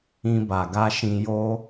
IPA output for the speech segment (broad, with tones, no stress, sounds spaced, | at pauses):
ĩ˧ b a˨ ɡ a˧ ʃ ĩ˧ j o˦